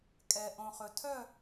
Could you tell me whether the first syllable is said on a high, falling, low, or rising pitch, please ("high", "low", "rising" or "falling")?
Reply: low